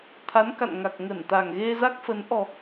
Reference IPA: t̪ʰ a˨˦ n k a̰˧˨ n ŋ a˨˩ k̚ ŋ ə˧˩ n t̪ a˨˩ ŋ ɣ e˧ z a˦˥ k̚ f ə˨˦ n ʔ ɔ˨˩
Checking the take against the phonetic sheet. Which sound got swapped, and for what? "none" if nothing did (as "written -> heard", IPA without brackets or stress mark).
none